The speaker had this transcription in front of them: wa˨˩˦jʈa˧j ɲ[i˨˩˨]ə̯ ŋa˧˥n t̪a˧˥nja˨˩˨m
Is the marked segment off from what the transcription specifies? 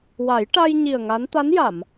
yes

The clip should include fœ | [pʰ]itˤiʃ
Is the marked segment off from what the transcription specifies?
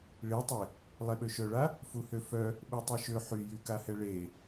yes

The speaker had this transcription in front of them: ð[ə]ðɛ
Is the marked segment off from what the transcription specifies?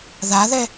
yes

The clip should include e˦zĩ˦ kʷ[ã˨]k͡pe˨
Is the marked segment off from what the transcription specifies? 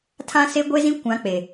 yes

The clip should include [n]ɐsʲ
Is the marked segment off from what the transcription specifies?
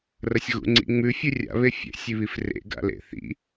yes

